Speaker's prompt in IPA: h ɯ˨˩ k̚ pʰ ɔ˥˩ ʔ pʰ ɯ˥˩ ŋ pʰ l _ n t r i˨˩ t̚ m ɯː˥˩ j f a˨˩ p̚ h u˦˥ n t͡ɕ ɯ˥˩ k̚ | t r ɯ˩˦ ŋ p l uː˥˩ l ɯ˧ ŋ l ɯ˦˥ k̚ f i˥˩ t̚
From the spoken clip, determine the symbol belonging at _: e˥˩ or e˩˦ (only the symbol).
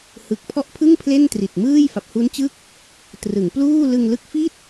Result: e˥˩